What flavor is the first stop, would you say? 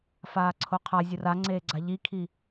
click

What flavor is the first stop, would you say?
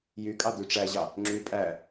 ejective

